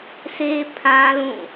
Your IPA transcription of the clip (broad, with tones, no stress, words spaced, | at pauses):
sʰe˦ pʰã˦lũ˦˨